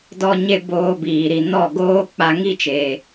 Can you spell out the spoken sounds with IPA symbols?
dɔ˧ɲe˧ boː˧biː˨ɾi˨ nɔ˦˨ɡoː˦ k͡pa˧ŋi˦˨t͡ʃeː˨

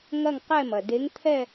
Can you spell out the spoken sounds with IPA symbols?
ŋɐ˥˧ŋqɛ˥˧mɐ˩ de˨˥ŋt̪ʰɛ˥˧

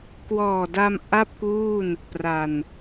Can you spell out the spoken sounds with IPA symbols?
kwɔː˨˩da˧m ʔa˥˩p̚kuː˥˩n | pra˨˩n

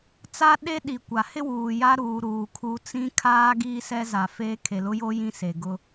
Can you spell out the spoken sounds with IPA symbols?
t͡sa˦ ɗe˦ɗi˨kʷa˨ hɪ˦wuː˨ ja˦ɾuː˨ ɾuː˨kʰu˦ t͡sĩ˦kʰaː˦ ɡiː˦sɛ˦za˨feː˦ kʰe˨lʊ˦jo˦ jĩ˦se˨ɡʊ˦

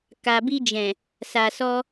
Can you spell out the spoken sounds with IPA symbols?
ka˨bi˧d͡ʒɛ̃˨ | sa˨sɔ˧

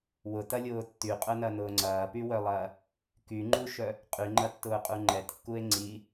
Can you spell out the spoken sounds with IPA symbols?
wʊtɐlʲʊː tːyqʼœnɐnʊː ŋ͡ǀɐːpywœlˠɐː | kyŋ͡ǃuʃœ | qʼyŋ͡ǃɐtːʊːqʼu ŋ͡ǃɛtkːue̯ ŋ͡ǀi

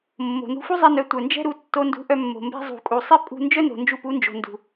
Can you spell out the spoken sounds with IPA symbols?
mːo̤˨nṳ˧ fu˦zˤɛ˧nœ˨˦ tʷœ˨nd͡ʒɛ̤˦ɾu˧ tːo˧ndṳ˨˦ʔœ˧ mːo̤˨mbɛ̤˧ zˤṳ˨kʼu˨sˤɛ˦ pʼṳ˧ nd͡ʒœ˦no̤˨ nd͡ʒu˧pu˨˦nd͡ʒo̤˨ ndṳ˨

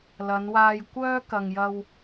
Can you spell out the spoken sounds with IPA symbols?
lɐ˨˧nwaː˧j kʷœː˥kɐ˨ŋjɐ˧w

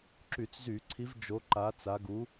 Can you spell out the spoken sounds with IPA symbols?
ǁy˧˩˧t͡szy˧˩˧ǀʰi˨˦v d͡ʒo˨˦ǃa˨˦t͡sa˨˦ ɡu˨˦

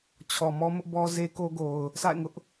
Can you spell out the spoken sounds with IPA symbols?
t͡ɕʰɔ˨mɔ˦mʊ˦ʔ bɔ˦ze˦ko˦ɡo˨ʊ̯ | sa̰˦˨ɪ̯ŋʊ˦ʔ

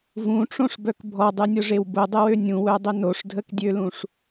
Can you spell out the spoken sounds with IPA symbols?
vũʈ͡ʂõʂbœk bʱɔdˤynʲʊʐew bʊdˤɪwø nʲũwœdˤʏ noʂdʱəkdʲølũʂ

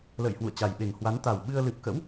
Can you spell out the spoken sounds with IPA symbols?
lə̰ː˧˨jhwṵ˧˨ə̯ t͡ɕa˨˩jɓe˨˩ŋhwa˨˦n t̪a˨˩wɓɨ˧ə̯ lɨ˨˩p̚kə̰˧˥w

